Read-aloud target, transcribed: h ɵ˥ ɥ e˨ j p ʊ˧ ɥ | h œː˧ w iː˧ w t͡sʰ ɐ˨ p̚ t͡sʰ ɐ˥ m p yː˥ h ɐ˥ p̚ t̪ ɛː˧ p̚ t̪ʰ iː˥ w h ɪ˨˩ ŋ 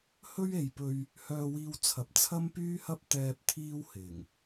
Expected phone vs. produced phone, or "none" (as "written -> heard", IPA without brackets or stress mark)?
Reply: ʊ˧ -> ɵ˧